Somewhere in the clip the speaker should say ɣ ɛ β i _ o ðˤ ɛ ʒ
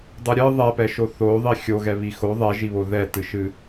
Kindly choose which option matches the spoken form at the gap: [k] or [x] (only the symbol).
x